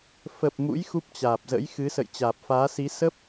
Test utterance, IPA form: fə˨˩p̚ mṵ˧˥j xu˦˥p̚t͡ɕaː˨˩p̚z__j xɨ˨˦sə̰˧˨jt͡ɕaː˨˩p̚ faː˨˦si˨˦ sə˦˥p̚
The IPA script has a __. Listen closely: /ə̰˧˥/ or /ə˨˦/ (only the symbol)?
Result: ə̰˧˥